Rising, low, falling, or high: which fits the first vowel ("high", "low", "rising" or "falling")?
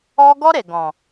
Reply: high